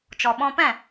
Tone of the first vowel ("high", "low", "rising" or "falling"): low